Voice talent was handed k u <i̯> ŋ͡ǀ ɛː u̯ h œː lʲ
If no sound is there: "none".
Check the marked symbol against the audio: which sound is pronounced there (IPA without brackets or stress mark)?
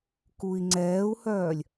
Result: i̯